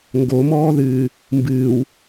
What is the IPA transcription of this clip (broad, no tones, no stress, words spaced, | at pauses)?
ŋɡomɔːðɨː | mbɨːw